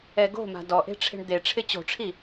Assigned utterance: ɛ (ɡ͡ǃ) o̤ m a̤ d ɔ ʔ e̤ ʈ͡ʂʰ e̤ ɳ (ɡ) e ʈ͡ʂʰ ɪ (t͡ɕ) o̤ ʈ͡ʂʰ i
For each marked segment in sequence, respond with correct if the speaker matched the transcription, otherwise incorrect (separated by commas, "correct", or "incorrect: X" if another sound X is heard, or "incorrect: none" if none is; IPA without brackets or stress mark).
incorrect: ɡ, incorrect: d̪, correct